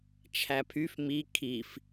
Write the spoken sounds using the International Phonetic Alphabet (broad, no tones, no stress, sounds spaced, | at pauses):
t͡ʃʰ æ pʰ y f m i kʰ i f